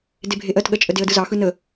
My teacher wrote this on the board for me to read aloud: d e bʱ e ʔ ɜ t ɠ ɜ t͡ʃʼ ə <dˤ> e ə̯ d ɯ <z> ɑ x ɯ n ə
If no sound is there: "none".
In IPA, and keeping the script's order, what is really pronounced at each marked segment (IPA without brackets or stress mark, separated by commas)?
d, z